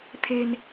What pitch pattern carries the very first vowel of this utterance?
low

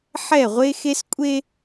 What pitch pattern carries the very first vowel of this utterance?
falling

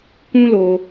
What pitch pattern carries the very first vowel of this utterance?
high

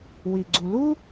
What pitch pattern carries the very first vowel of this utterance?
low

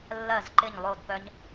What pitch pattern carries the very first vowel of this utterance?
falling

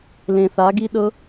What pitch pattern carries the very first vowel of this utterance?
low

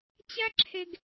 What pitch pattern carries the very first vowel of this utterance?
high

